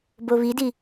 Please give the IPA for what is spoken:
b o β i d i

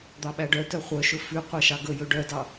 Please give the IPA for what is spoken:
d̪ ɑ ɓ æ ɖ œ t œ χʷ œ ʃ ɵ f ʉ qʷ æ ʃ ɑ ɡ ɵ j ɵ ɖ œ d ɑ

